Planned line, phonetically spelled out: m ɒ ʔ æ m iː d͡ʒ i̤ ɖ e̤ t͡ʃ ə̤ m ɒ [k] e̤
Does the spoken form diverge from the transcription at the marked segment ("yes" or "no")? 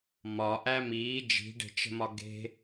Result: yes